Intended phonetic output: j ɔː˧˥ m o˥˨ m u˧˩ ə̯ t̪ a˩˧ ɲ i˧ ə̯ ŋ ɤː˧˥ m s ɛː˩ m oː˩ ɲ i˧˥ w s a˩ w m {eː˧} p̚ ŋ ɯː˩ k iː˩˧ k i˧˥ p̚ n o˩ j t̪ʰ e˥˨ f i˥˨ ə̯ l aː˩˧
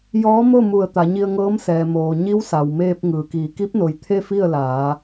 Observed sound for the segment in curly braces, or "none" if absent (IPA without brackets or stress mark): eː˧